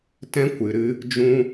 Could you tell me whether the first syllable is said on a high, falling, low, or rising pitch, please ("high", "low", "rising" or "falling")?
high